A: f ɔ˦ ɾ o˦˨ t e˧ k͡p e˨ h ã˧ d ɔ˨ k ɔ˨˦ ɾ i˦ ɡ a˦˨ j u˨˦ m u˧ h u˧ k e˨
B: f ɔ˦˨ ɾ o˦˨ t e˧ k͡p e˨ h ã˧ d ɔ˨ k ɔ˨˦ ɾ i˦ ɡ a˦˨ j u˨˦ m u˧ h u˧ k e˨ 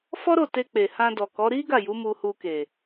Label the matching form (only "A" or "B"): A